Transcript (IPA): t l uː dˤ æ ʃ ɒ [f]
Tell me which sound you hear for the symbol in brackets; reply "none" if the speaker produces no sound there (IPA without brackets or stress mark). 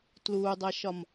m